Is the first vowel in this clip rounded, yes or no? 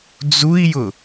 yes